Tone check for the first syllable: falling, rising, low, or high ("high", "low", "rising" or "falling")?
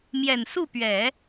low